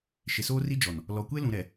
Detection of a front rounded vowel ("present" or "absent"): absent